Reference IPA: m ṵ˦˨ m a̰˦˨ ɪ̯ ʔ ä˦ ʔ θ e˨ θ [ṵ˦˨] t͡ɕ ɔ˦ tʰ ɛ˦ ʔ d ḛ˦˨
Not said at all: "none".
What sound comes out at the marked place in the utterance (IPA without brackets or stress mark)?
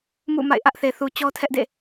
u˨